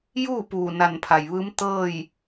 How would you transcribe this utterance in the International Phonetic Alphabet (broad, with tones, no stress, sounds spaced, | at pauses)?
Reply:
j uː˥˨ p uː˧˩ n a˧˩ n pʰ a˩ j ʋ ɯː˧˥ m t̪ ɤː˥˨ j